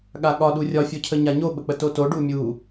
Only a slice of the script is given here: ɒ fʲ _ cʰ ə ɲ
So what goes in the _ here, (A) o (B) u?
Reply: A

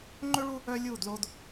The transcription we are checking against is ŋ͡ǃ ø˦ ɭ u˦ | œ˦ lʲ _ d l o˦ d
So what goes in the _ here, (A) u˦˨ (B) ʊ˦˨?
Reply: A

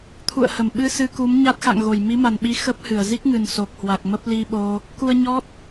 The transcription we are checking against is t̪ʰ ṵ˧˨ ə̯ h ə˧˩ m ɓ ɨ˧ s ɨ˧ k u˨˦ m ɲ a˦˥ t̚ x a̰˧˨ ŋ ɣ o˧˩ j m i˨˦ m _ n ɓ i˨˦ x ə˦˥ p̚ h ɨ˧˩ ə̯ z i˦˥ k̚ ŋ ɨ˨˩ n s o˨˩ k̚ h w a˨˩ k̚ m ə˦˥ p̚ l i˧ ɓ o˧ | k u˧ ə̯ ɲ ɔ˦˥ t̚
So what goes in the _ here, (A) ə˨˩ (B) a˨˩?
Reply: B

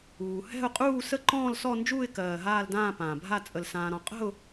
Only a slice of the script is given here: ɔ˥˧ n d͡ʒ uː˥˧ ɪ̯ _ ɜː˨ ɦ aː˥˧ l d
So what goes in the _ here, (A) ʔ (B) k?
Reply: B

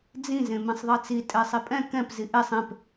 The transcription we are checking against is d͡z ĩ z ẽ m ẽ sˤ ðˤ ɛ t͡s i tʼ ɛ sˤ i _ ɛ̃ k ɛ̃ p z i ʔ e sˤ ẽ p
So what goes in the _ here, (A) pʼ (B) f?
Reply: A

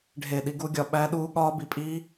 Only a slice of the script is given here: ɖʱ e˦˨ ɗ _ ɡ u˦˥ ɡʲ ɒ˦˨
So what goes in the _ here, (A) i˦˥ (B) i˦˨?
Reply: A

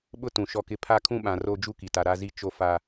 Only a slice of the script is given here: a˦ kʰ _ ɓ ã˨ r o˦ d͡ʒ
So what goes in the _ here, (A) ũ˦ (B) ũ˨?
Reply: A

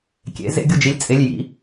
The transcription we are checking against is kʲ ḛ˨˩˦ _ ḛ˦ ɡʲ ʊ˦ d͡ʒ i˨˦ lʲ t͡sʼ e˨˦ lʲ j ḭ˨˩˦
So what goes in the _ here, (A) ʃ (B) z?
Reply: B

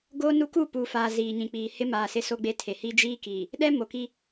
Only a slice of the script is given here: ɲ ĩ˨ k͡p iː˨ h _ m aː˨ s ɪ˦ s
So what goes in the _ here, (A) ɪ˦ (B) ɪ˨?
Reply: A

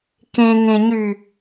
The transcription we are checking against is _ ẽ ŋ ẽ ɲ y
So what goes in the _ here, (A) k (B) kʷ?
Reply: A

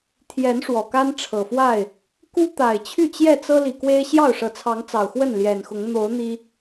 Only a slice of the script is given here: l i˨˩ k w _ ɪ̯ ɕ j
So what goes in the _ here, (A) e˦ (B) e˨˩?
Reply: A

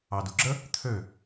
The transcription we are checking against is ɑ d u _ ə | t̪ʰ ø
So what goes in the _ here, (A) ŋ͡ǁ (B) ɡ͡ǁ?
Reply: B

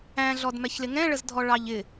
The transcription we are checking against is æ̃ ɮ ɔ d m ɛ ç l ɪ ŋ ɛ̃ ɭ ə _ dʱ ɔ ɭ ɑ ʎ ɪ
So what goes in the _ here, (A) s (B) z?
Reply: B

